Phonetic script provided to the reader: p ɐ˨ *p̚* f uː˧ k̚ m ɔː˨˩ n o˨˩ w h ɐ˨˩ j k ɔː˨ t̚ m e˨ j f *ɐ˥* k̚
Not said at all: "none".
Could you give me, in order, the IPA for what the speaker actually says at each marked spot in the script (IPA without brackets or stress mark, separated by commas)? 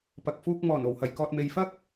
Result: k̚, ɐ˥